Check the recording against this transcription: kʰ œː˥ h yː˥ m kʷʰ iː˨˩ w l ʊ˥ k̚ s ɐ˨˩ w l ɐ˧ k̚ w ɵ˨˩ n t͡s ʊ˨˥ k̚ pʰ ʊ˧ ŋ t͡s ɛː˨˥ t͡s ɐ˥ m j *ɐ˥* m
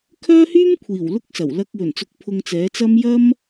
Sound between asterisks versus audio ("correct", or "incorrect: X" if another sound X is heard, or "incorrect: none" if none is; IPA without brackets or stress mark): correct